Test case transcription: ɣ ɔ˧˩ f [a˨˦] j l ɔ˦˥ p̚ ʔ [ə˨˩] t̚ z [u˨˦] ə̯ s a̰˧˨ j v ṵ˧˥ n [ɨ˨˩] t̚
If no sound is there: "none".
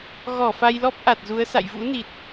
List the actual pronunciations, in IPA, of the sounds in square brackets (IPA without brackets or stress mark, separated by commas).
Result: a˧, a˨˩, u˨˦, i˨˩